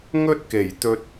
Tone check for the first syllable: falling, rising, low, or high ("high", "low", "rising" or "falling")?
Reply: high